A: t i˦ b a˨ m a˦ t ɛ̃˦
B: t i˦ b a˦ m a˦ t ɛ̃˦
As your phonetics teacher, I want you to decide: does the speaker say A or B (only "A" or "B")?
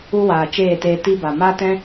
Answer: A